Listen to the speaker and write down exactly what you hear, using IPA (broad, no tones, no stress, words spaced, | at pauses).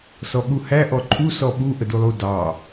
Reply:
sɔɠuhæ ʔɔǃʰu sɔɓu ʔədulˠu dɑ